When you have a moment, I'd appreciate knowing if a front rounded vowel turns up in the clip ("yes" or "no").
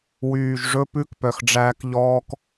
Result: yes